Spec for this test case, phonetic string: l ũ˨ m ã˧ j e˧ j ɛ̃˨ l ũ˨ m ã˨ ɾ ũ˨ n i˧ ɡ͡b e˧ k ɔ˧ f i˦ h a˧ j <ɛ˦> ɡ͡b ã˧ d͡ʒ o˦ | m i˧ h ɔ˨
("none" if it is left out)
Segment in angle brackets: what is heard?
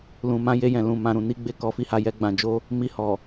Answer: ɛ˦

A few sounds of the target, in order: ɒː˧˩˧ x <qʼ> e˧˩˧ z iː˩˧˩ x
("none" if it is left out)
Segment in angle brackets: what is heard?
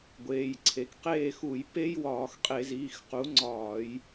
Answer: qʼ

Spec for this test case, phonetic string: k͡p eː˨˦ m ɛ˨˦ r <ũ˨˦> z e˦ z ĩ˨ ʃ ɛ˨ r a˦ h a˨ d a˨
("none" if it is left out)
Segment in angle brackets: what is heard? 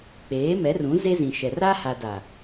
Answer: ũ˨˦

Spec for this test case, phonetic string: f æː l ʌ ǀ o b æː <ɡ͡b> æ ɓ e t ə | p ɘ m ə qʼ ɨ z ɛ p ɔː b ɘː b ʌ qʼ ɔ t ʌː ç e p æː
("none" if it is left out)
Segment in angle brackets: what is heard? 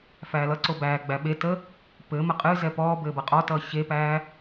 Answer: ɡ͡b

